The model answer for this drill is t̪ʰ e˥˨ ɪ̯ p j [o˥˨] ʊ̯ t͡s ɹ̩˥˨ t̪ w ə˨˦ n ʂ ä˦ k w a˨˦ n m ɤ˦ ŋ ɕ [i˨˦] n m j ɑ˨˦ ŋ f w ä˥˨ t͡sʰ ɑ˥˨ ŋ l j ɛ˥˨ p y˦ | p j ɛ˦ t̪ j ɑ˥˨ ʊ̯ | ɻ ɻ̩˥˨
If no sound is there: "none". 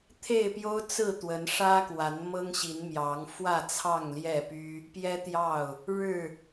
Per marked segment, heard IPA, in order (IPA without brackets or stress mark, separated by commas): o˦, i˨˦